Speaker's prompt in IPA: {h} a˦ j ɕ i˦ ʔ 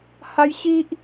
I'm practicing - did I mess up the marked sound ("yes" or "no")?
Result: no